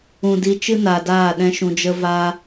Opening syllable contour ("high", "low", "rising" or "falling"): low